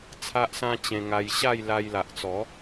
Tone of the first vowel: high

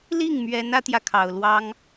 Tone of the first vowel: falling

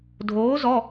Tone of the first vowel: rising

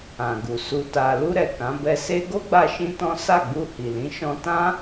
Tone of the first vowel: low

